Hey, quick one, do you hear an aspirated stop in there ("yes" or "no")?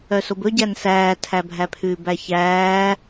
yes